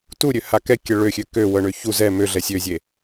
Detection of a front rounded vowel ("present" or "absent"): present